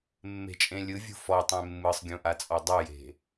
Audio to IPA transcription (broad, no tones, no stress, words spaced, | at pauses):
mːe̤t͡ʃʼẽlʲɯvʲṳ fɔtˤẽ mːɯsˤɡʲũʔat͡sʼɔ dˤuje̤